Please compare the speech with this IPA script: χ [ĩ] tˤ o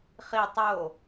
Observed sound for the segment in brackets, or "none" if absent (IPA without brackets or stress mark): i